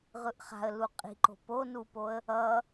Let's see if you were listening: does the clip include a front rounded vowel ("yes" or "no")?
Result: no